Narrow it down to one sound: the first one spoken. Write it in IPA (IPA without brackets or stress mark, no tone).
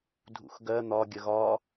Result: dʱ